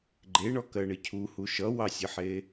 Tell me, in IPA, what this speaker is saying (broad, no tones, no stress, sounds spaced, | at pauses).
ɡ͡ǃ e ɳ ɔ k ɜ ɳ ɘ cʰ u h u ʃ ʌ w ɑ sʲ ʌ ħ e